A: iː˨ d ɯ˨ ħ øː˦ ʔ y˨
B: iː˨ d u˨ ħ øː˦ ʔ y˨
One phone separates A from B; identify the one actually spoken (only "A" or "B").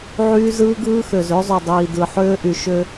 A